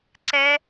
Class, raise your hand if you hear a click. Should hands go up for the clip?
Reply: yes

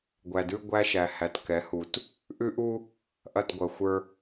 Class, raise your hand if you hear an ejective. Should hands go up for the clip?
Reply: no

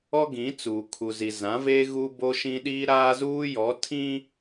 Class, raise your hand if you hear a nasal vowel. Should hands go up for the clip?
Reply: yes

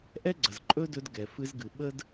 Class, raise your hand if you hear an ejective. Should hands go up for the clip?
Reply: yes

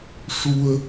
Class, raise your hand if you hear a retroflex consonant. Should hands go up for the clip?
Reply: yes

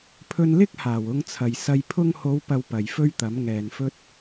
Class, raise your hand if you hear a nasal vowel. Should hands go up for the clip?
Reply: no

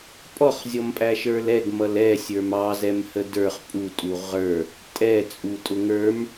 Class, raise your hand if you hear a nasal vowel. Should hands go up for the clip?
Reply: no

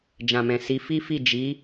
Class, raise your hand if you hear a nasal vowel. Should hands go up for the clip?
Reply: yes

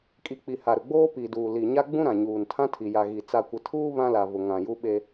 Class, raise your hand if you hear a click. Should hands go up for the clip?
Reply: no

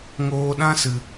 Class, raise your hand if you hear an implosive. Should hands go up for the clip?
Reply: yes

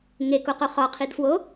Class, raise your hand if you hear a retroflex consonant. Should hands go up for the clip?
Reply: no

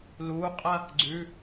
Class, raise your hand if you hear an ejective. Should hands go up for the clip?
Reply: yes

